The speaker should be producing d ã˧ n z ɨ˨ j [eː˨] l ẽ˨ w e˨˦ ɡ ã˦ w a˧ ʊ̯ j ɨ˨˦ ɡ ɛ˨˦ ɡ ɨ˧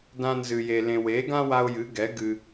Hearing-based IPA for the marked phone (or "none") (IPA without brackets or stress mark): e˨